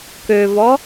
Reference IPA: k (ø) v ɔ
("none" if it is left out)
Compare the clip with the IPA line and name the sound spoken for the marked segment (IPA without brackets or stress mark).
ø